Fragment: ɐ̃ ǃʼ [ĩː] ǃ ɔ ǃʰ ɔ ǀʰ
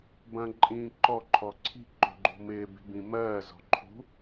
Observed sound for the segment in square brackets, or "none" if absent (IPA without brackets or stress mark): ĩː